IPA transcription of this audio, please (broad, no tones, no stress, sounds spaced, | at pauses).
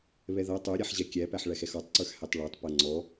β ɛ ð ʌ tˤ ə˞ ɾʲ æ ħ ʑ ɛ kʲ æ p æ ħ ɭ æ x ɛ x ɔ tˤ ǀ ə˞ x h æ tˤ ɭ ə˞ tˤ p ʌ ŋ͡ǀ ɔ